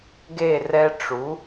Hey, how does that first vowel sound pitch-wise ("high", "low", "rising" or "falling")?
falling